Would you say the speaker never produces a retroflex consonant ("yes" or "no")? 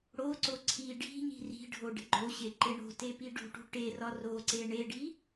no